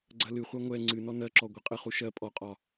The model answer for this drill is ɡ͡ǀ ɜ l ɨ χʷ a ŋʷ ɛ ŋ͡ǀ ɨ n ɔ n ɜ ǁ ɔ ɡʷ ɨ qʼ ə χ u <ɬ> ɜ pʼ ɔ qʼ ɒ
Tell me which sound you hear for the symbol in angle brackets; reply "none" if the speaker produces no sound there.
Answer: ʃ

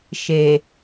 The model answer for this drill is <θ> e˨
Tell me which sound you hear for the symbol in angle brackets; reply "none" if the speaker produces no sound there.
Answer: ʃ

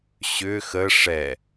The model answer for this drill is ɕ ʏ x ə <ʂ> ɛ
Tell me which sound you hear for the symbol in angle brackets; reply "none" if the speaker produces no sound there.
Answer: ʂ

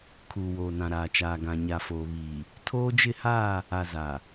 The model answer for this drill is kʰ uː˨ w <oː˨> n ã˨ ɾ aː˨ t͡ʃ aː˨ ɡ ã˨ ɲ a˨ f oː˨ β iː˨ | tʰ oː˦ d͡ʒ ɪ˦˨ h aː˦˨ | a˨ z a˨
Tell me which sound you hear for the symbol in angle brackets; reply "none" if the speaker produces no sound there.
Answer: oː˨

